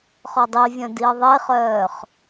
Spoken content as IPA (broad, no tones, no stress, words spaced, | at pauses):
χɔdˤivʲœ̃ diə̯ðˤeχœːχ